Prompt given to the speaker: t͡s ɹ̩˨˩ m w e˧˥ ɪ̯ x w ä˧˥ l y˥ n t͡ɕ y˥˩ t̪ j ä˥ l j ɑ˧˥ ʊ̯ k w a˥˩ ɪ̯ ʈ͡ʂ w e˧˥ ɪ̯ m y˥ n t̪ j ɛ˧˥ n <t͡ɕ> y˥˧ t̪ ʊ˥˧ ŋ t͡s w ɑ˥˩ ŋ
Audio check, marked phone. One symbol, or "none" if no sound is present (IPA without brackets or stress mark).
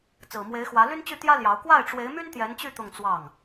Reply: t͡ɕ